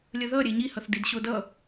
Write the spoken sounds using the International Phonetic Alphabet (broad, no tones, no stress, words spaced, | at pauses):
lʲəðʌɾʲe ɲihʌθ didɕodʌ